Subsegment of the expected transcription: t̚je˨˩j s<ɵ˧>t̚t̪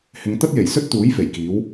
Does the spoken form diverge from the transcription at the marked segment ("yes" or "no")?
yes